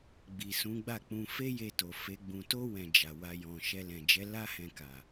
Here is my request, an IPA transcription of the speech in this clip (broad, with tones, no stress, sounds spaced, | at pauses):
ɡ͡b i˨ s ũ˨˦ ɡ͡b a˦˨ k͡p ũ˧ f e˦ j e˧ t o˨ f e˨˦ ɡ͡b ũ˧ t o˦ w ɛ̃˧ d͡ʒ a˨ w a˧ j ɔ̃˨ ʃ ɛ˧ l ɛ̃˨ d͡ʒ ɛ˨˦ l a˦ h ɛ̃˧ k a˨